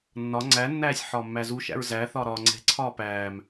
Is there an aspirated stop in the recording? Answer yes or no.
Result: yes